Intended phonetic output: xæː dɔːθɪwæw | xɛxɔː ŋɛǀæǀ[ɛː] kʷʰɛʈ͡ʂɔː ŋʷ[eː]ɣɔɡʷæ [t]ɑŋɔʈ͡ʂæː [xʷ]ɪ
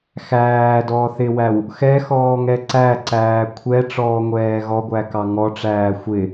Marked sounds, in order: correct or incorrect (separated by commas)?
incorrect, incorrect, incorrect, correct